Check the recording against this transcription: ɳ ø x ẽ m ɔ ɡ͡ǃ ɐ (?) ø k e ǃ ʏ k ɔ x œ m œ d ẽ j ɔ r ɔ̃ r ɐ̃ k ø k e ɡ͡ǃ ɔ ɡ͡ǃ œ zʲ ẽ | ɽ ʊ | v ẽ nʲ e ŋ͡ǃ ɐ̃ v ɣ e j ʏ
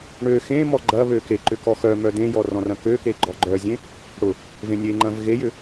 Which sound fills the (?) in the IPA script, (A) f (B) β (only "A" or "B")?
B